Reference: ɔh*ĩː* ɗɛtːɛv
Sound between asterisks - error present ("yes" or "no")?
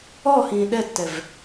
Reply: no